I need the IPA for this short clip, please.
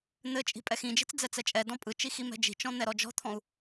n̪ ɘ t͡ʃʼ i̤ pʼ ɛ x ĩ d͡ʒ i̤ t͡s d͡z ɛ t͡s ɛ t͡ʃʼ ɛ d ɔ̃ pʼ ɯ t͡ʃ i x i m ɛ̤ d͡ʒ i̤ t͡ʃ ɔ̃ n̪ ɛ ɾ ɔ d͡ʒ ɔ̤ t̪ʰ ɔ̃ u̯

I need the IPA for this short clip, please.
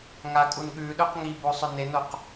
ŋ a kʼ u n ɠ ʉ ɗ ɵ q ŋ i b o sˤ ɵ n e n o q

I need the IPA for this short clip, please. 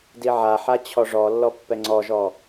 d i ʕ a ħ a t͡ɕʰ ɔ ʐ ɔ lː ɔ pː ɛ ŋ͡ǀ ɔ ʒ ɔ

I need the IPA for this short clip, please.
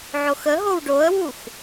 ʕ o x ə ɦ o w ɖ o ə̯ w u x

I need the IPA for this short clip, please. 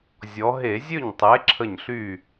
zʲ ɔ˩˧ ɦ e˧˩˧ zʲ ø˥˩ ɲ tˤ e˨˥ ǁʰ ə˧˩ ɲ ɬ y˧˩

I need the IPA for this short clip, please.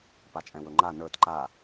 p a t͡ʃʼ ɛ̃ w ɵ ŋ͡ǃ a n ə˞ t ǃ a

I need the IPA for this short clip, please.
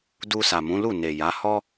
d u˧ s a˨ m ũ˨˦ l u˦˨ n e˨ j a˨˦ h ɔ˦

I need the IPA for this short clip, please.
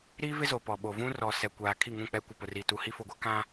ɾ iː˦ v ɪ˦ z o˨ p ɔ˨ ɓ o˨ v ũ˦ r ɔ˨ s ɛ˨ kʷ aː˨ kʰ i˦˨ ŋ ũ˦˨ k͡p ɛ˦ kʷ ɪ˨ p ʊ˨ r iː˨ t u˨ h i˦ f o˨ ɡʷ a˦ k ã˦

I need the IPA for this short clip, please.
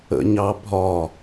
ə̰ ɲ ɑ bʱ ɒ

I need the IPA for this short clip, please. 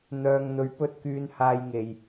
n̪ œː˧ ŋ n̪ ɵ˧ ɥ p ɵ˥ t̚ k yː˧ n h aː˧ j ŋ e˨ j

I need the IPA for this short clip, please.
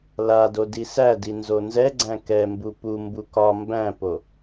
l a d o d i s æ d i n z o n z ɛ ɡ͡ǀ æ̃ k ɛ m b u p u m b u k ɒ m b æ̃ p o

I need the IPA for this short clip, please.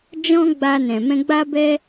d͡ʒ ɔ̃˦ ɡ͡b a˧ n ɛ̃˨ m ɛ̃˧ ɡ͡b a˦ b ɛ˦

